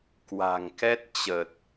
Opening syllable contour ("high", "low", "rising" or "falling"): low